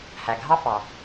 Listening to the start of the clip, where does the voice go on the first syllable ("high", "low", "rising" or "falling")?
low